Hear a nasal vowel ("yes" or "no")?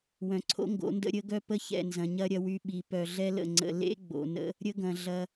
yes